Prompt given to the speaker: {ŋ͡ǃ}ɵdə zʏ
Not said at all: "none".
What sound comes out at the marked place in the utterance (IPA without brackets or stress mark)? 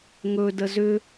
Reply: ŋ